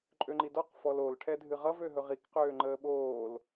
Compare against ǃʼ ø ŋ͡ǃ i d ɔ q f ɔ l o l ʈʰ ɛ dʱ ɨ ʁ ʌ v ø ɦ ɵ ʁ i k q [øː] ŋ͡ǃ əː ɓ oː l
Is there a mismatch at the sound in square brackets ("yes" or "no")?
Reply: no